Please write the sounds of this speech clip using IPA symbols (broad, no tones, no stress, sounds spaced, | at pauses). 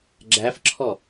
ɡ͡ǁ æ f ǁʰ ɔ